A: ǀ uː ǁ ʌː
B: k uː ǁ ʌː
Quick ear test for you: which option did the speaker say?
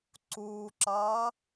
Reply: A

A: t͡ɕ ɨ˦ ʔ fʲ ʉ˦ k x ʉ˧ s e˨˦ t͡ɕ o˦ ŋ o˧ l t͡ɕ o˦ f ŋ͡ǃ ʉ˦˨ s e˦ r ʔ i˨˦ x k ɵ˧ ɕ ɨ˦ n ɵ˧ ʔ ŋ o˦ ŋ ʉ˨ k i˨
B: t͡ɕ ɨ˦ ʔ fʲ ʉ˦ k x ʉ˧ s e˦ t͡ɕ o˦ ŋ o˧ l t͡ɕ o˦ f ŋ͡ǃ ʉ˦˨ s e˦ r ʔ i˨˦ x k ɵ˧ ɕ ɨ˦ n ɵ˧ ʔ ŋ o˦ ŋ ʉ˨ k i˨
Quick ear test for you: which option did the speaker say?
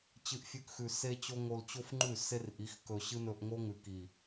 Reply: B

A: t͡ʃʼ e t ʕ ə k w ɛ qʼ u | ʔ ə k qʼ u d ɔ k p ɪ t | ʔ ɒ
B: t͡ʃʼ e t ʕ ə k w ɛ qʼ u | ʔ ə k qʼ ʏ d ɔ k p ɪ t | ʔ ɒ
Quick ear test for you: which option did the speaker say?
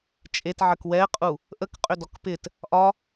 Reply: B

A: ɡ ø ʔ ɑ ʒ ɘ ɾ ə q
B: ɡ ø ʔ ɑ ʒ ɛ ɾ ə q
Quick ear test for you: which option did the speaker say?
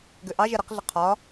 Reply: B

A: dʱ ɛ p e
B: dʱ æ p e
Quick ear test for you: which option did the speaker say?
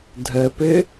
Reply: A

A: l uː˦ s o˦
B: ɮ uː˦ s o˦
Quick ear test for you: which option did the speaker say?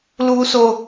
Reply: A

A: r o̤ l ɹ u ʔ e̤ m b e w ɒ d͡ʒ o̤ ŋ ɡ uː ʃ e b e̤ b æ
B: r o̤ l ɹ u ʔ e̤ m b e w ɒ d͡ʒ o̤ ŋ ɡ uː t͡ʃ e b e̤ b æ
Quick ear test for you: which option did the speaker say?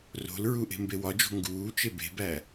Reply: B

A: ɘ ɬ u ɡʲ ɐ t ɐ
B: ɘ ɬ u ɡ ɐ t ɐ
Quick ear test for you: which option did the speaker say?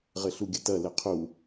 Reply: A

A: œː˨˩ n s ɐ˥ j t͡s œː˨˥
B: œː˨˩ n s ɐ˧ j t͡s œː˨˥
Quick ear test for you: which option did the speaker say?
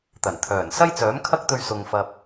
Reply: A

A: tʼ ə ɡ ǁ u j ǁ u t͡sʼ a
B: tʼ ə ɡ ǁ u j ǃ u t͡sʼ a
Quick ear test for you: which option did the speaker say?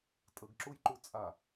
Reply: B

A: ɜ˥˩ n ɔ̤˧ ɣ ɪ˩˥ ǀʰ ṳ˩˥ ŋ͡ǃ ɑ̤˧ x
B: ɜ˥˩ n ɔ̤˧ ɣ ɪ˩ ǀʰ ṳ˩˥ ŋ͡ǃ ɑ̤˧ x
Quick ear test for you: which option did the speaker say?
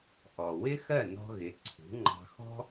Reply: A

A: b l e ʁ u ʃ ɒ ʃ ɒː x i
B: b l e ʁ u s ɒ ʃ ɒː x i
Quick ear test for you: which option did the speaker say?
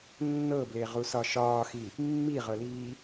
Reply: B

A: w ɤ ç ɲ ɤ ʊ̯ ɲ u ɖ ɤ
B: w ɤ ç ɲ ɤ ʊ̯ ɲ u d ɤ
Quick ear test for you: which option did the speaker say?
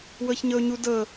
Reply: B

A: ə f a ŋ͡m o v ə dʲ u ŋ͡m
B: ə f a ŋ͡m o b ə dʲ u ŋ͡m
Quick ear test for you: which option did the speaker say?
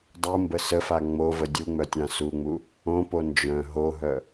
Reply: A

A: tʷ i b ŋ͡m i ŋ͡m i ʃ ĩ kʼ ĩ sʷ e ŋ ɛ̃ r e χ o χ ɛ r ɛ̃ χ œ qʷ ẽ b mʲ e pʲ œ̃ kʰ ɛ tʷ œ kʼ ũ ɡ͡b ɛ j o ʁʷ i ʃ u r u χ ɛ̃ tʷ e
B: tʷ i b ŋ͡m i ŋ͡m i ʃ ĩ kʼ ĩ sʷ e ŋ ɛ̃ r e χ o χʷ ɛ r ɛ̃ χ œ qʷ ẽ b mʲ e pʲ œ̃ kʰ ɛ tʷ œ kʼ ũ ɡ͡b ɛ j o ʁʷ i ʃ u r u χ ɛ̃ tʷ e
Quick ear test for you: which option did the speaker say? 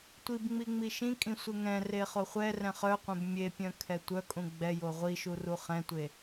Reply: B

